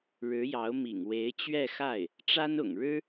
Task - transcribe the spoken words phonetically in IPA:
ɻ ɻ̩˧˥ j ɑ˧˥ ʊ̯ m ḭ˨˩ ŋ w e˧˥ ɪ̯ t͡ɕ ɥ ɛ˥˧ x a˥˩ ɪ̯ | ʈ͡ʂ a˥ n ʊ̰˨˩ ŋ ɻ ɻ̩˥

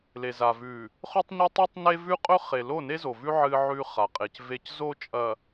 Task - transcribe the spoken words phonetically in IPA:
l e˨ z a˨ v ʉ˨ | χ ɵ˦ tˤ ɲ ɨ˦ tˤ ʉ˦ tˤ n e˦ v ʉ˦ qʼ ɵ˦ χ e˨ l o˦˨ n e˦ z o˨ v ʉ˦ ʕ ɨ˦ ʕ ʉ˦ χ a˨ qʼ e˨ c v e˦ c z o˦ t͡ʃʼ ɐ˨

